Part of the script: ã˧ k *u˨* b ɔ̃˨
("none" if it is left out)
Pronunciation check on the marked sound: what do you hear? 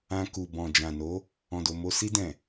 u˨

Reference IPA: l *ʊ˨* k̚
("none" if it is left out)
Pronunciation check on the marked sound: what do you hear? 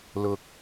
ʊ˨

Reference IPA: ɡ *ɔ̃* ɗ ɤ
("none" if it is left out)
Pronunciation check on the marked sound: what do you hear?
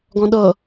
ɔ̃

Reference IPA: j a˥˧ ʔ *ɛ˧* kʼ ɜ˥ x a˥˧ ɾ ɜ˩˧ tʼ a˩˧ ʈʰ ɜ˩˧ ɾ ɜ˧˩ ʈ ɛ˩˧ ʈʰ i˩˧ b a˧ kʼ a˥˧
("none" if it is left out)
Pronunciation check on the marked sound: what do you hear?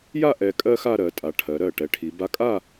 ɛ˧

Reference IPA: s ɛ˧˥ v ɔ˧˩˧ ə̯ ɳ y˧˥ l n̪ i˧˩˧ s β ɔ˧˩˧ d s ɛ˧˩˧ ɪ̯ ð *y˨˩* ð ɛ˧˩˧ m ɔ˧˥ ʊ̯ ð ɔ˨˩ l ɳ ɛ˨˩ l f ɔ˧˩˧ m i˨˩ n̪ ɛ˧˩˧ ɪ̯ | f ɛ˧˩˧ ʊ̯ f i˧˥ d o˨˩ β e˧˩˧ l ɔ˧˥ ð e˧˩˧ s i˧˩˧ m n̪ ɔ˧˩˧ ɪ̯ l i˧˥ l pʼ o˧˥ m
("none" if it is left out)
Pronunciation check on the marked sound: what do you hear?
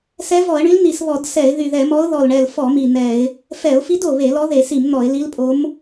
y˨˩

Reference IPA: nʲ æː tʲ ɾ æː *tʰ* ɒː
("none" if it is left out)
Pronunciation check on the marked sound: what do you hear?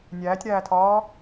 tʰ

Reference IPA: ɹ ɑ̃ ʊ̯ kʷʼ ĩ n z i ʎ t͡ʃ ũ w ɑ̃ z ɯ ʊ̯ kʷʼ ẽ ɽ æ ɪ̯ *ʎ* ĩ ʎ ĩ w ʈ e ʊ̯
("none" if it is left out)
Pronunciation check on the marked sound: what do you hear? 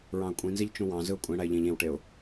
ʎ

